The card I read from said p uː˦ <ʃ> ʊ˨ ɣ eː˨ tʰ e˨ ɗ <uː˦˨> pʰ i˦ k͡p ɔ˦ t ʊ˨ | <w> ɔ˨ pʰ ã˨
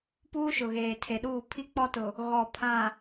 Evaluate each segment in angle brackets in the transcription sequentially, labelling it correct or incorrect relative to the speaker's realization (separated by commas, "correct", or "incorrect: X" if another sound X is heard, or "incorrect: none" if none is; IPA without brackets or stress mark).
correct, correct, incorrect: ɣ